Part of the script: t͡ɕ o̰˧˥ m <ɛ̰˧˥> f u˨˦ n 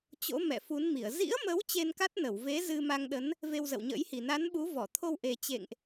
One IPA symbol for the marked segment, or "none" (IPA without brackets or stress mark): ɛ̰˧˨